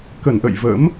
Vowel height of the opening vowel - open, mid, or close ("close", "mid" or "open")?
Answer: mid